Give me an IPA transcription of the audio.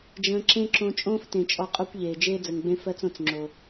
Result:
d͡ʒ ə̃ː˧ ǁ ẽ˦ ǁ õ˧ t͡ʃʼ õː˦ f t ẽ˨ t͡ʃʼ ɔ˧ qʼ o˦ kʷ ʎ eː˨ d͡ʒ eː˦ d͡z ə˨ ŋ ɡ͡b ẽ˦ f ɜ˧ t͡s õ˨ t͡s ŋ͡ǁ o˨

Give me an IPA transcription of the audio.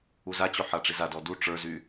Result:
u z a t͡ɕ o ħ a ʈ͡ʂ i z a d ɔ d u ʈ͡ʂ ə˞ z y

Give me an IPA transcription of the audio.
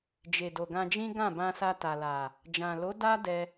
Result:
d͡ʒ e˨ d o˨ ɡ ã˧ d͡ʒ ĩ˦ ɡ ã˦˨ b ã˧ s a˧ t a˨ l a˨ | d͡ʒ ã˨ l o˨˦ d a˦ d ɛ˧

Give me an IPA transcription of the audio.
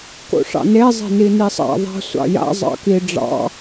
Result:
k o̰ ʂ ɑ̰ n e zˤ e̤ n i n i sˤ a̰ ðˤ a̤ sʷ ɑ̰ j a̰ zˤ ɑ̰ k i ɖ͡ʐ ɑ̰

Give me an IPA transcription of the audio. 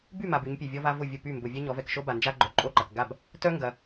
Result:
b y˥˨ m a˨ b y˨˦ ɲ pʲ e˨ vʲ ɔ˦ v a˦ v ʊ˥˨ vʲ ʊ˥˨ p y˥˨ m b ʊ˨ vʲ ɛ˦ ɲ ɔ˨˦ v ɛ˨ k ʃ o˦ b a˨ n d͡ʒ a˦ ɡ͡ǃ œ˨˦ ǃʼ o˥˨ ǃ ɐ˨ k ɡ a˥˨ b | t œ˦ ŋ ɡ ɐ˨

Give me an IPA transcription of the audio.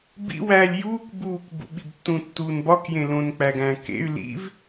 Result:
b ḭ w æː lʲ j uː k b uː k b ṵ ɓ i b tː ũ tː uː n b ɒ k j ẽ l õ n k͡p æ ɡ æ̃ː k ḛ y̯ l ḭ v

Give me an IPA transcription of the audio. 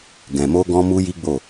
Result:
ɡ ɛ̃˨ m o˧ ɡ ɔ̃˧ m u˧ j i˦ ɡ͡b o˦˨

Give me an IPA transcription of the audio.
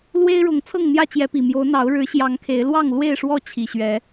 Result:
l w e˦ ɪ̯ ɻ ʊ˨˦ ŋ t͡sʰ ɤ˥˨ ŋ n̪ j ä˥˨ t͡ɕ j ɛ˨˦ p i˨˩ m j o˨˦ ʊ̯ n̪ ɑ˨˦ ʊ̯ ɻ ɻ̩˨˦ ɕ j ɑ˨˦ ŋ kʰ e˨˦ ɪ̯ l w ɑ˥˨ ŋ l w e˥˨ ɪ̯ ʂ w ɔ˥˨ t͡ɕʰ i˨˩ ɕ ɥ ɛ˨˦

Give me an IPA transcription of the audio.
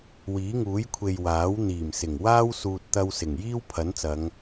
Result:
w iː˨˥ ŋ uː˨˥ j kʷʰ e˨ j w aː˨˥ w n̪ iː˨˩ m s ɪ˨˩ ŋ w aː˥ w s uː˧ t̚ t̪ ɐ˧ w s ɪ˨˩ ŋ j iː˥ w pʰ ɐ˨˥ n t͡s ɐ˨˧ ŋ

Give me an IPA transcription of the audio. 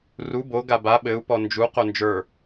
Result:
r u b o ɡ a b a ɓ ɘ u̯ p ɔ n d͡ʒ u q o n d͡ʒ ə˞

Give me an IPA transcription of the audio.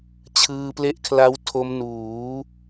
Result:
t͡ɕʰ ɯː˧ p l e˦˥ ʔ kʰ l a˦˥ w tʰ o˦˥ m n uː˩˦

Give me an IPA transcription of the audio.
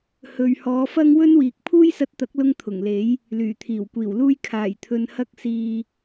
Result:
h ɵ˨ ɥ h ɔː˨˧ f ɐ˥ ŋ w ɵ˥ n w iː˨ k̚ pʰ uː˥ j s ɐ˧ t̚ t̪ ɐ˨˥ k̚ l ʊ˧ ŋ t̪ʰ ʊ˨˩ ŋ l e˨˥ j | l yː˨˩ t̪ʰ iː˨˩ w kʷ iː˨˩ w l uː˥ j kʰ aː˨˩ j t̪ʰ ɵ˨ n h ɐ˧ k̚ s iː˨

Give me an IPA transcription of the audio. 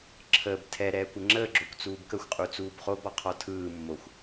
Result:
ǁʰ əː b tʰ ɛ ɾ ɛː kʷ ə ŋ͡ǁ əː ɡ͡ǁ o kʷ t͡s uː b k ə xʷ qʼ u t͡s uː b χ o b ɔ qʰ ɔ tʰ ɯː mː o xʷ

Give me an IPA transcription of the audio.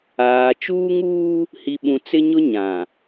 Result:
aː˨ t͡ʃ uː˦ ŋ uː˦ | h i˦ ɓ ũ˦ t͡s ɪ˦ ɲ ʊ˦ ɲ ã˨

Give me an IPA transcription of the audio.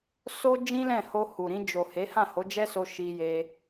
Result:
s o˦ d͡ʒ ĩ˦ l ɛ̃˦˨ h o˧ h u˨ ɾ ĩ˧ d͡ʒ o˨ h e˨˦ h ã˦˨ h o˨˦ d͡ʒ ɛ˦ s o˧ ʃ i˧ j e˧

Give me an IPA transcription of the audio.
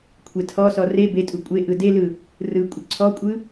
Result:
kʷʰ e tʰ ɔ s ɔ r e b e tʼ u kʷʼ e ʔ ɯ d e l ɯ | r ɯ kʷʼ ə ǀʰ ɔ kʷʼ ɯ

